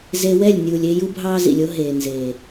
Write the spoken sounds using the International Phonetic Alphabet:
z e˧ w ɛ˦˨ lʲ nʲ uː˨ lʲ e˦ j u˦ bʱ ɑː˦ z ḭ˨ lʲ o˦ ɦ eː˨ n z eː˨

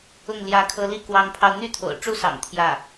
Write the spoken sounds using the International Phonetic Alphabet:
ʊ˥˩ ŋ l j ä˧˥ kʰ ɤ˧˥ l i˥˩ k w ɑ˧˥ ŋ pʰ ɑ˧ ʊ̯ n̪ y˥ t̪ʰ o̰˨˩ ʊ̯ ʈ͡ʂ u˥˩ s ɑ̰˨˩ ŋ t̪ʰ j ä˥˩

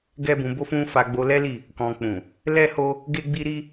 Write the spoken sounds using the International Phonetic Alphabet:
ɡ ɛ˦ b ũ˧ b o˦ f ũ˦ f a˧ ɡ͡b o˧ l ɛ˦ l i˦˨ | k ɔ̃˧ k͡p ũ˨ | l ɛ˦ h o˦ | ɡ e˦ ɡ͡b i˦ ɾ i˦

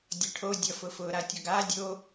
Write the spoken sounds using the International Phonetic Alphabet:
dʲ ʌ ʈʰ o dʲ ʌ f ʊ f ʊ ɾ a tʲ ɔ ɡ a dʲ o

